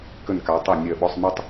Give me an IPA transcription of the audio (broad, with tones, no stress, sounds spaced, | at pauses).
k ə˧˩ n k a˩˧ tˤ e˧˩ nʲ ɜ˧˩ ɓ ɔ˧ sˤ m e˧ tˤ